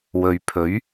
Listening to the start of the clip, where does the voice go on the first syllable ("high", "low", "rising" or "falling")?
low